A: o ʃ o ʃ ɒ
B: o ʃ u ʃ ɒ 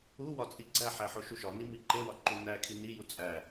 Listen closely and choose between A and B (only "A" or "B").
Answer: B